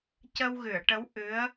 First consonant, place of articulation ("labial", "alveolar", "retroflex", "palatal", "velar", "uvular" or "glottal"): palatal